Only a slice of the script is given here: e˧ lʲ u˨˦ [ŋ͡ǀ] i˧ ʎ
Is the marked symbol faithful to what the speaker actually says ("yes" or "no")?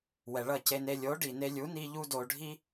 no